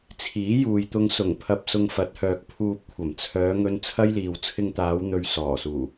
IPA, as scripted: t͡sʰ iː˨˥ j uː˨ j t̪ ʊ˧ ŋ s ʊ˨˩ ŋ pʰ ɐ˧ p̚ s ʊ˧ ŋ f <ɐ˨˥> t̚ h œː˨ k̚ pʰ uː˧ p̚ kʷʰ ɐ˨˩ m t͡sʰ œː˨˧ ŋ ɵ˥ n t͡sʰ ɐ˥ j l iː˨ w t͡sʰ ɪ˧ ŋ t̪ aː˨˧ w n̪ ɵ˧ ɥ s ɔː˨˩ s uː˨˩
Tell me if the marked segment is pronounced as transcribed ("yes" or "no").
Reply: yes